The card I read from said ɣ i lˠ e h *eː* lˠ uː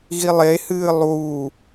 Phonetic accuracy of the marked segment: incorrect: ɨː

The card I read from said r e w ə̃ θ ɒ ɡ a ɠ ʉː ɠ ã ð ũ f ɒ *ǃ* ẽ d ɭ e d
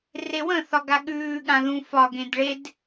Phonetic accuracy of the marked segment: incorrect: ɡ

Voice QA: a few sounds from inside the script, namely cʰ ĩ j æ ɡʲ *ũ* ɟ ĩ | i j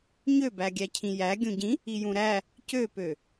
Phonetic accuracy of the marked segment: correct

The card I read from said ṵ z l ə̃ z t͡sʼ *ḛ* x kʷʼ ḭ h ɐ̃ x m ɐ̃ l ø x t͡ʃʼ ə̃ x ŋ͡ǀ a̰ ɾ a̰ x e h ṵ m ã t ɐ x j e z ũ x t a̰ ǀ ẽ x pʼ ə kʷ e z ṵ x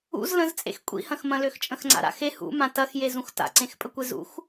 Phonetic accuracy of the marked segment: correct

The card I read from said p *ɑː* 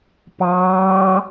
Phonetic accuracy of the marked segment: correct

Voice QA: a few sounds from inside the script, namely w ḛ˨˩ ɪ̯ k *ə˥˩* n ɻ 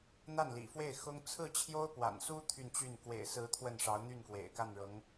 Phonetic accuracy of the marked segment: incorrect: a˥˩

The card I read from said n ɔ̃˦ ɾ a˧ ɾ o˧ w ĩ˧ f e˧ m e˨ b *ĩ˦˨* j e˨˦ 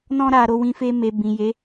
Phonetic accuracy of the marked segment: incorrect: ĩ˨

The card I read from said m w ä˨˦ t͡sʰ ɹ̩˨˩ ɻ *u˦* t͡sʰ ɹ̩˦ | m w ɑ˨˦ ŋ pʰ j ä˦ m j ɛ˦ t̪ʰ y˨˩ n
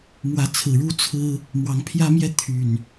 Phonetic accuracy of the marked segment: correct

